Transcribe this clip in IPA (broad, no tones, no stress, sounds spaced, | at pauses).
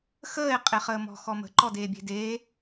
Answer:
x əː e̯ qʼ e χ əː m ɔ̤ x ɔ m ə̤ ǃ ɔ d eː bʲ e̤ d eː